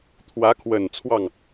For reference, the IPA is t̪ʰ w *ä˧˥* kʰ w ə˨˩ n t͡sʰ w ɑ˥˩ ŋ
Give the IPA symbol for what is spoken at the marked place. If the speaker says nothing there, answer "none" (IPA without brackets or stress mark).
ä˧˥